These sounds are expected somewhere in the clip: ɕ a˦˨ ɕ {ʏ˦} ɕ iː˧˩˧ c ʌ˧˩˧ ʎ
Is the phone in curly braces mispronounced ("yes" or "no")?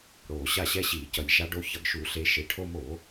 yes